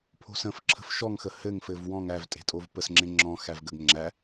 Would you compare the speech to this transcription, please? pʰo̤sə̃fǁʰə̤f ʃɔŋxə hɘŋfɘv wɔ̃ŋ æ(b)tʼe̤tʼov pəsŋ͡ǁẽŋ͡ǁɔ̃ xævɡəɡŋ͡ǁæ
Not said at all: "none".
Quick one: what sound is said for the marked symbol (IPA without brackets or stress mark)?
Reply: v